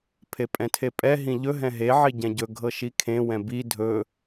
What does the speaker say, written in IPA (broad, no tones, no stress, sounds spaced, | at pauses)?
pʰ e pʼ ɛ̃ tʰ e pʼ ɛ ɦ ĩ ʎ ɵ ɦ ɛ̃ ɦ e ʕ i ɟ ɛ̃ ɟ ɵ ɡʱ ɤ ʃ i kʰ ẽ w ɛ̃ b i dʱ ɵ